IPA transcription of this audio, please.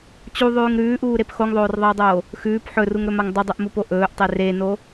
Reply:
t͡ɕ u ðˤ ʉː ŋ ɾ ʉː ʔ uː ɾ e p x o ŋ ðˤ oː r ðˤ e o̯ dˤ oː | x ʉː p ħ ɵ r u ŋ ɾ ɵ m a ŋ dˤ u dˤ ʉ ʔ m u p o ʔ ɵː ʔ tˤ e r e n o

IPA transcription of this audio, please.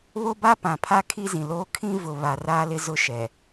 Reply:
β o˦ b a˦ p ã˨ pʰ a˦ kʰ i˦ z ĩ˨ l oː˦ kʰ ĩ˦ v ʊ˨ β a˨ r aː˦ l ɪ˦ z ʊ˦ ʃ ɛ˨

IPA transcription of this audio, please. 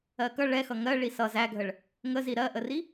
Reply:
ɜ k ʌ ɭ ɛ x ʌ ŋ ɜ ɭ i s ʌ z æ ɡʱ ə ɭ | ŋ ə z i ɾ ɜ ʔ ə r i

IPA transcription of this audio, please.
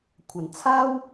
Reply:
kʷʰ ɐ˨˩ n t͡sʰ aː˥ w

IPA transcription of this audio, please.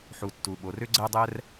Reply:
ħ u˩ tː u˩ ɓ o˩ r ʏ˧ ɡ͡ǀ ɛ˧ dˤ ɛ˧ r

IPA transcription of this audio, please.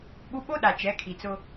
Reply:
ɓ u˦ ɓ o˦ ɗ a˨ t͡ʃ ɛ˨˦ kʰ i˨ t͡s ʊ˦

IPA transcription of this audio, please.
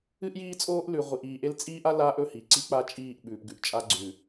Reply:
ɨ˦ ʔ j iː˦ t͡sʼ oː˦ ʔ l ʉ˨ ʁʷ i˨ ʔ iː˨ ʔ e˦ l t͡sʼ iː˦ ʔ a˦ l aː˦ ʔ ɵ˦˨ h i˨ ǀ i˦ k͡p a˦ t͡ʃʼ iː˦˨ ʔ ɓ ʉː˨ p ɡ ʉ˨ ʔ t͡ʃʼ a˦ ɡ͡ǀ ʉ˨

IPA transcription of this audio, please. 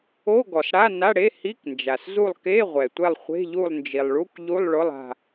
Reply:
o˧˥˧ ɡ ɔ˩ s ɽ a˧˥˧ n a˧˥˧ ɽ e˧˥˧ h i˧˥˧ k n d͡ʒ a˩ s z u˦˨ lˠ k e˧˥˧ ʁʷ ɛ˩ tʷ ɛ˦˨ lˠ χʷ e̤˧˥˧ ʎ u˦˨ lˠ n d͡ʒ i˩ lˠ ɭ u˧˥˧ k ʎ u˧˥˧ lˠ ɭ ʊ˧˥˧ lˠ a̤˦˨

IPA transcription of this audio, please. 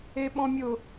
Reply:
e ɓ ɔ̃ mʲ ʊ

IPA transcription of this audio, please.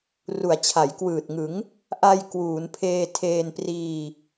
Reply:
r u˩˦ a̯ t͡ɕʰ a˩˦ j k w ɯː˨˩ t̚ ŋ ɯ˩˦ ŋ | ʔ a˧ j k w uː˩˦ n pʰ eː˧ tʰ eː˧ n p r iː˧

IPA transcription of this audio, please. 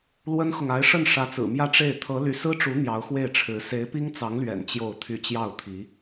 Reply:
l w ə˥ n x ʊ˨ ŋ a˧˥ ɪ̯ ʂ ə˥˩ n ʂ ä˧˥ t͡s ɹ̩˨˩ m j ä˥˧ ʈ͡ʂ e˥˩ ɪ̯ t̪ʰ ɤ˧˥ l y˧˥ s ɹ̩˥ ʈ͡ʂ u˧˥ n̪ j ɑ˧˥ ʊ̯ x w e˥˩ ɪ̯ ʈ͡ʂʰ ɻ̩˧˥ s e˧˥ ɪ̯ p i˥ ŋ t͡s ɑ˧˥ ŋ l ɥ ɛ̰˨˩ n t͡ɕ j o˥˧ ʊ̯ t̪ʰ y˥˧ t͡ɕ j ɑ˥˩ ʊ̯ t̪ʰ i˧˥

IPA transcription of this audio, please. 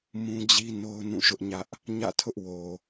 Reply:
m ũ˦ d͡ʑ i˦ n o˦ ʊ̯ n ũ˦˨ ʃ ʊ˦ ʔ ɲ ä˦ ʔ | ɲ ä̰˦˨ tʰ ʊ˦ ʔ w o˨

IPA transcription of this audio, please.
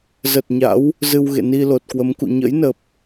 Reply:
z ə˨˩ t̚ ɲ a̰˧˥ w | z ɨ˧ w ɣ ḛ˧˨ n i˧ l o˨˩ t̚ k w ə˨˦ m k ṵ˧˨ ɲ ə̰˧˥ j n ə˨˩ p̚

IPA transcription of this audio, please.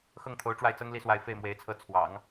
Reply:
x ɤ˥˩ ŋ t̪ʰ o˧˥ ʊ̯ ʈ͡ʂ w a˥˩ ɪ̯ t͡s ɤ˥ ŋ l i˥˧ s w a˥˧ ɪ̯ f e˥˩ ɪ̯ m w e˧˥ ɪ̯ t͡sʰ ɤ˥˩ t͡sʰ w ɑ̰˨˩˦ ŋ

